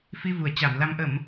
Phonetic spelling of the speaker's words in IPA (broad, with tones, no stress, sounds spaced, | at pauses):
f i˧ v u˧˩ ə̯ t͡ɕ a˧˩ m l a˧ m ʔ ə˧˩˨ m